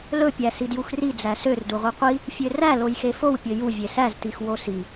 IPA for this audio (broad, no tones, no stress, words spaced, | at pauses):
lɵpʲæ sidjuxri d͡zæsør duʁʷiqʷi | fʲøræ lojxefow pʲɵju vʲesæztix wosi